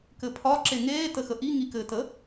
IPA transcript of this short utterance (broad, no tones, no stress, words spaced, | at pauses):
kɘpʰɒ ǁeŋeː təxəʔi ŋikɘːtə